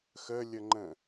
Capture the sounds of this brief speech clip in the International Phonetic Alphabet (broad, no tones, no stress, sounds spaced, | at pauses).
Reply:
x ə lʲ ə ŋ͡ǃ ə̃